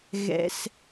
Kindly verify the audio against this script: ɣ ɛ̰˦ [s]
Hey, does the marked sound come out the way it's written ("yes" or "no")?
yes